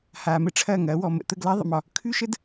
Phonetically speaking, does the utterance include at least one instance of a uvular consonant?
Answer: no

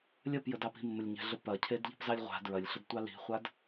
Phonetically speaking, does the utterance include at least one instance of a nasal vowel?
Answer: no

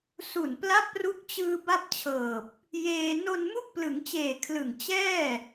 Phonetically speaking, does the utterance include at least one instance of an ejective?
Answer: no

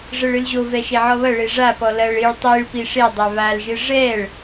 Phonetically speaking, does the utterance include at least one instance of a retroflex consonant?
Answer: yes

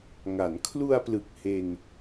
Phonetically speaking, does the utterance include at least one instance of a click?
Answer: no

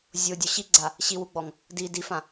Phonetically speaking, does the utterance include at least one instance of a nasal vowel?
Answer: yes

